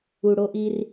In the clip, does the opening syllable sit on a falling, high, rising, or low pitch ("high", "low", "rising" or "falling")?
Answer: low